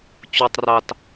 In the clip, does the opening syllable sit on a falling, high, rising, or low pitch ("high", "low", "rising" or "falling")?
low